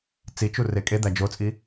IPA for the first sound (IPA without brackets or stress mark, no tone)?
t͡s